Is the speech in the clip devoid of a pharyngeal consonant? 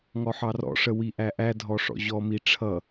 no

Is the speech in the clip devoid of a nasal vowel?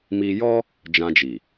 no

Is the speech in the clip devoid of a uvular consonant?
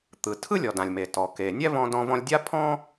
yes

